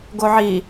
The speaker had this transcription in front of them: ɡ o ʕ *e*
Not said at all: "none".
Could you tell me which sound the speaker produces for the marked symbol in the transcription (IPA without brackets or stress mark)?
i